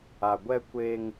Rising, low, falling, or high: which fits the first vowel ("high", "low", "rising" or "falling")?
low